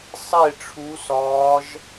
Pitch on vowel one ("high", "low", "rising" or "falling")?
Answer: falling